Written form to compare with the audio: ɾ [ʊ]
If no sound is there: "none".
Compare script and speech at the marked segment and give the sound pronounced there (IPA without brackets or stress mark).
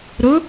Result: ʊ